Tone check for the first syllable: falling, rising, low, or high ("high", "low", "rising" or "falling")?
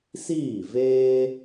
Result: falling